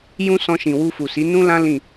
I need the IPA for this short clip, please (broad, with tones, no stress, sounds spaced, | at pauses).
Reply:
j ũ˦ s ɔ̃˧ ʃ ĩ˨ w u˧ f u˨ s i˨˦ n ũ˦ l ã˦ l ĩ˦˨